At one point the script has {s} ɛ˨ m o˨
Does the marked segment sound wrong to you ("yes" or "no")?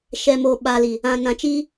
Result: yes